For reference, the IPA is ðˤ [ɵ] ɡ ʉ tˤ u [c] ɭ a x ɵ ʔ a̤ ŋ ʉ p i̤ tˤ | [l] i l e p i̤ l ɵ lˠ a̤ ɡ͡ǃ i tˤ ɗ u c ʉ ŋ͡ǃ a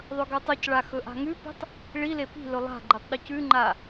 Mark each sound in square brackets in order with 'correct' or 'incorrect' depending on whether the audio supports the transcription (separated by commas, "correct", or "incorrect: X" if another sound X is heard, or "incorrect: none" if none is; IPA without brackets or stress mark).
correct, correct, incorrect: ɭ